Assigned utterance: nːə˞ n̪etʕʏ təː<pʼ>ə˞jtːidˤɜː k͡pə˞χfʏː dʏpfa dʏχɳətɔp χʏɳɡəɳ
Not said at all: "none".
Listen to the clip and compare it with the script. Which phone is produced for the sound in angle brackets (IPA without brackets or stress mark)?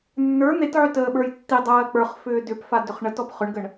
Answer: ɓ